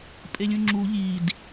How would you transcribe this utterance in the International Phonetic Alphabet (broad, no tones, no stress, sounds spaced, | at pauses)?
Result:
pʼ e lʲ ũ ŋ͡ǁ u ʎ i d